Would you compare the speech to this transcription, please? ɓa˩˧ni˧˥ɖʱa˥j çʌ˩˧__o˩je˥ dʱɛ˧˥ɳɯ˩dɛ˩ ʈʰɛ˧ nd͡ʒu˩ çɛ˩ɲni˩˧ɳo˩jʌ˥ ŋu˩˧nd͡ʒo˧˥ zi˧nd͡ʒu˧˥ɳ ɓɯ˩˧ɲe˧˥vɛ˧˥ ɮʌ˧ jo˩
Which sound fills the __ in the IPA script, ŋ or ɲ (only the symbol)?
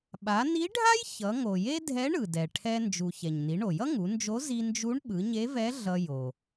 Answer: ŋ